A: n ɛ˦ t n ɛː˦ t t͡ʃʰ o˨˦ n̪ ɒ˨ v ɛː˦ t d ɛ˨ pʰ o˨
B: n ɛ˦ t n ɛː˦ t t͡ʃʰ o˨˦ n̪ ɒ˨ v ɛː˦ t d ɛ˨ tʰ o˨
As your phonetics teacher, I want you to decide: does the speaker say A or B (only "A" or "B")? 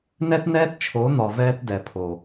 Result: A